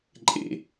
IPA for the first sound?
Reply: ǃʼ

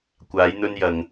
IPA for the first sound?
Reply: kʷ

